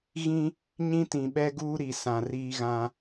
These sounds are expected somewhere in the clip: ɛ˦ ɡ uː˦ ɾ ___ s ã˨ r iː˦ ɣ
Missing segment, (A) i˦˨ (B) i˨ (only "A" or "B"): B